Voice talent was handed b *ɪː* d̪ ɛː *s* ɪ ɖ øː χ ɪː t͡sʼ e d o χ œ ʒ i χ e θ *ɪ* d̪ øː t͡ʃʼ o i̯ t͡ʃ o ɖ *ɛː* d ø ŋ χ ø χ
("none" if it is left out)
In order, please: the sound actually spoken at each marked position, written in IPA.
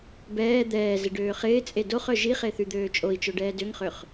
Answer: ɛː, z, y, ɛː

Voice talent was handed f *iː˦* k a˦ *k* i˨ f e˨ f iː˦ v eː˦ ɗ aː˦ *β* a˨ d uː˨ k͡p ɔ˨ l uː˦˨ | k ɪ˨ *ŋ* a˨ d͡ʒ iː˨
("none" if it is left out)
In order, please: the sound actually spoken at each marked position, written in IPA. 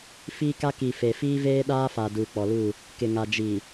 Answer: iː˦, k, f, ŋ

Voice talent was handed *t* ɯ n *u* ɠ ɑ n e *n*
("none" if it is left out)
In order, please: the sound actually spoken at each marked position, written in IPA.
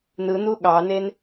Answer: n, u, n

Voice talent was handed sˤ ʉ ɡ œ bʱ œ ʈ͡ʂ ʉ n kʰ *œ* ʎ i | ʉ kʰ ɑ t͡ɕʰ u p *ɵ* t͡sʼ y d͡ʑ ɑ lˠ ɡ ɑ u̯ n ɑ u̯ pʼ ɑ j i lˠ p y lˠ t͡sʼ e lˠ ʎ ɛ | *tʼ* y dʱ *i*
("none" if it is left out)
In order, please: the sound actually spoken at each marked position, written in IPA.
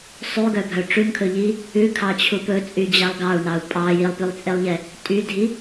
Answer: ɵ, ɵ, tʼ, i

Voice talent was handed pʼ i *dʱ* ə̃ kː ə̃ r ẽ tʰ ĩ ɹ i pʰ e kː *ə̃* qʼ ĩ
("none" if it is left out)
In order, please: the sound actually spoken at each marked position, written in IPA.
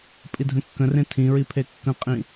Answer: dʱ, ə̃

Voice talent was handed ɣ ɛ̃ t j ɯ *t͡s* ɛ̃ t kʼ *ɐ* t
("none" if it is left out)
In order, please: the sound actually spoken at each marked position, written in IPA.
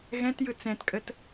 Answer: t͡s, ə

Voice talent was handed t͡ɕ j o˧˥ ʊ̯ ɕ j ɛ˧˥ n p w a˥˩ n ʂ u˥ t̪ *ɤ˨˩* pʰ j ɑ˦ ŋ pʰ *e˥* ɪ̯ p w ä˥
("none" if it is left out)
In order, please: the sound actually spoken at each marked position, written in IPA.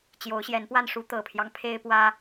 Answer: ɤ˨˩, e˥

